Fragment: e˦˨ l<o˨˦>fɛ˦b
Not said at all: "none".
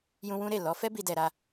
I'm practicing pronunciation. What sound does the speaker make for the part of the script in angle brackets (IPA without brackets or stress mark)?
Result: ɔ˨˦